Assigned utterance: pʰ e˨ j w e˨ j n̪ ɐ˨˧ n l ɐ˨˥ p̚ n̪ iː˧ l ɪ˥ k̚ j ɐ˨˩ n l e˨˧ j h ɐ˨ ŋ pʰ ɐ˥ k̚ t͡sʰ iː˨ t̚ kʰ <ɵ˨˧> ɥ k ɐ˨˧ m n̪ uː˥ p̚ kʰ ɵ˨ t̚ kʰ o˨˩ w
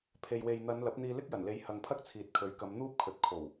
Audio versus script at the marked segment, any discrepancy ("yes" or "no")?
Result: yes